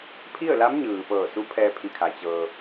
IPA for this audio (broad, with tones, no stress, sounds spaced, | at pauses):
pʰ i˥˨ ə̯ l a˧˥ m ɲ ɯː˩ p ɤː˧˩ s u˧˥ pʰ ɛː˧ pʰ i˧˩ kʰ a˩ t͡ɕ ɤː˩